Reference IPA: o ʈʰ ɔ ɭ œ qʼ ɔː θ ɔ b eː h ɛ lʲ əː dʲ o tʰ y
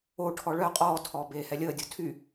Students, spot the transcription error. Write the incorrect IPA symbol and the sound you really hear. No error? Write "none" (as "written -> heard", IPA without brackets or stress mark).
θ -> tʰ